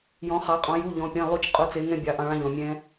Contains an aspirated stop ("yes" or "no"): no